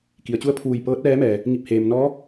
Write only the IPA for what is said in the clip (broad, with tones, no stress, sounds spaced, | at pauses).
k i˩ ə̯ t͡ɕ u˧˥ ə̯ pʰ uː˧˩ j p ɤː˧˥ t̚ ʋ ɛː˧˥ m ɛː˩ | ŋ i˧˩ p̚ h eː˩ m n ɔː˧˥